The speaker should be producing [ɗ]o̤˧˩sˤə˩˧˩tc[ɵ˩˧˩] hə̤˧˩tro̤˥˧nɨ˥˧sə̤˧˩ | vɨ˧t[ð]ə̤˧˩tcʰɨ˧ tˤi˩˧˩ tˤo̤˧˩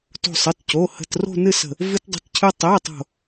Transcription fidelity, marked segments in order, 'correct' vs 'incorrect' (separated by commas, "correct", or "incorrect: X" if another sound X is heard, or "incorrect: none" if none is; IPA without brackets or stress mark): incorrect: t, incorrect: o˩˧˩, incorrect: dˤ